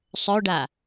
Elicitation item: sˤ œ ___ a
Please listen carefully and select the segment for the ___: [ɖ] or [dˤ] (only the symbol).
ɖ